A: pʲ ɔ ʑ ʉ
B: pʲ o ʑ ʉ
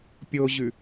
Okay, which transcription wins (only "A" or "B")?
B